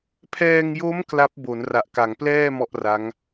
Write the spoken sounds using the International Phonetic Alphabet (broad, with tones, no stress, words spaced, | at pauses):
pʰɛː˧ŋjo˦˥m kla˦˥p̚ bo˩˦nra˨˩ʔka˩˦ŋplɛː˥˩ mɔ˥˩ʔra˦˥ŋ